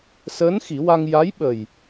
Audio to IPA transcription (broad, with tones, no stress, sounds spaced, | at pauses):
s əː˧˥ n x i˨˩˦ w a˧ ŋ j a˧˥ j ɓ ə˨˩ j